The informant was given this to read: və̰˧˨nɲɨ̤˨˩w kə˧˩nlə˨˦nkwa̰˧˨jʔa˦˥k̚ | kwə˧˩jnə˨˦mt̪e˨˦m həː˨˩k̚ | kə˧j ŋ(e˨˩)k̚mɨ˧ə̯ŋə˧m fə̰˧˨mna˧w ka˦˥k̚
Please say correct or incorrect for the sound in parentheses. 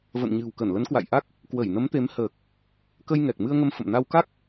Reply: incorrect: ɛ˨˩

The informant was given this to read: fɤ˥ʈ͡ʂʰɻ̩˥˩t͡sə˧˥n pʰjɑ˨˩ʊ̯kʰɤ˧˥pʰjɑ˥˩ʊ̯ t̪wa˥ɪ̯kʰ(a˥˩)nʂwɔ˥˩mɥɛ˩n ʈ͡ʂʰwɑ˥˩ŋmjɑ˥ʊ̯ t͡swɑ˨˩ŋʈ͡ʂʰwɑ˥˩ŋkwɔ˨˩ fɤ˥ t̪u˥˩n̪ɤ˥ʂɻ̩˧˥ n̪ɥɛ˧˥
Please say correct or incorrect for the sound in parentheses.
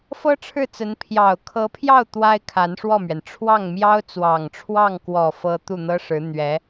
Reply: incorrect: a˧˥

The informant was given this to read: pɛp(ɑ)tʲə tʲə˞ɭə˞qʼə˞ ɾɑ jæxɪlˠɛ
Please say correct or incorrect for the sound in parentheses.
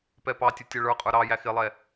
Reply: correct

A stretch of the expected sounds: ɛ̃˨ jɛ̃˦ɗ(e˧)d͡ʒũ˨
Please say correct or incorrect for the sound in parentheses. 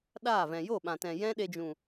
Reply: correct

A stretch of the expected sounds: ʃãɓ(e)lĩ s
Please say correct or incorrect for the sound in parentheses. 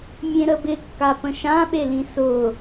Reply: correct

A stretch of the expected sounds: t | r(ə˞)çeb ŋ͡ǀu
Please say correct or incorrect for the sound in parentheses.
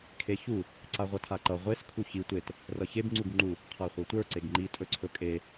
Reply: incorrect: ʌ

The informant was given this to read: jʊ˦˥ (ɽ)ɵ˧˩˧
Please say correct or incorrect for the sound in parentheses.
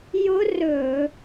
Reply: incorrect: r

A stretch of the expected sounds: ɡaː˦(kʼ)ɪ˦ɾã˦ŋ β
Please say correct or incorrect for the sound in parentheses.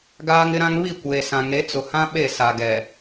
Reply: incorrect: ŋ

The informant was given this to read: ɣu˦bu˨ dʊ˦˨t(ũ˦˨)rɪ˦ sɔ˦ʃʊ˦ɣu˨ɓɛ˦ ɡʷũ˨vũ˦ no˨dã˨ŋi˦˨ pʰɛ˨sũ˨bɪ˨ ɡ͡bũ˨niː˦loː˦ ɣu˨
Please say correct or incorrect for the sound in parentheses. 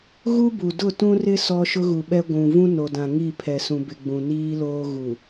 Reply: incorrect: ũ˦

